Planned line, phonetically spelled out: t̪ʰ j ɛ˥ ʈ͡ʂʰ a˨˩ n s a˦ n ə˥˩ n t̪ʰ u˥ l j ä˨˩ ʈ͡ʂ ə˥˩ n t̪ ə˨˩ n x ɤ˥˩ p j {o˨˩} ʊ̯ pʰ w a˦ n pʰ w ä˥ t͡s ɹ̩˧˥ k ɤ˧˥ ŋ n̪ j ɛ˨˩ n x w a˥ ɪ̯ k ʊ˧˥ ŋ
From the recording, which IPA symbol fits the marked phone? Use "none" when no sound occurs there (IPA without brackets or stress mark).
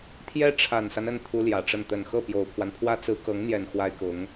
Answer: o˨˩